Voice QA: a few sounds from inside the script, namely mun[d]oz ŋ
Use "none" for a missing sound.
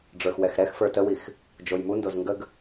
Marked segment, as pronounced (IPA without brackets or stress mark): d